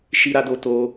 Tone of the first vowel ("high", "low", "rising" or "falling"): high